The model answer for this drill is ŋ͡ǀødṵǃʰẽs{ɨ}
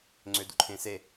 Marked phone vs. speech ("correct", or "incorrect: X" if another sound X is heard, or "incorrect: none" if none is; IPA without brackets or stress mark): incorrect: e